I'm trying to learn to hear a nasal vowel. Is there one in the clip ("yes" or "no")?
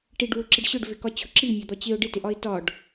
no